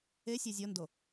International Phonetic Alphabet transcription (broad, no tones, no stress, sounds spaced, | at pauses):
e sʲ ɛ zʲ ɔ n d o